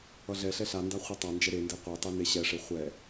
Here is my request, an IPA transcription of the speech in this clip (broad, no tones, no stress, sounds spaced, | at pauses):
ʌ ɮ ɛ ɬ ɛ ɬ a n d a χʷ ʌ tˤ a n d͡ʒ ɛ ɾ e n d e qʷ e tˤ e n e ɕ ɛ ʂ e χʷ ɛ